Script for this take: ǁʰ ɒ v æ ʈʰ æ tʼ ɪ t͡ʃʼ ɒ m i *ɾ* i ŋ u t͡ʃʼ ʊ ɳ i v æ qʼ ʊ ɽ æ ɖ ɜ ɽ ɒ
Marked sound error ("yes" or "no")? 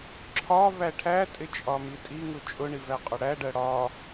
yes